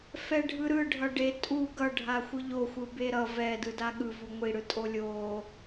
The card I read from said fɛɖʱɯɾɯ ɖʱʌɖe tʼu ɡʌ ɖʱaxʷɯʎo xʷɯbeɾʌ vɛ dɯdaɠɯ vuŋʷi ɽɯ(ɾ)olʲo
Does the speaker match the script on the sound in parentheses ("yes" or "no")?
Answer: no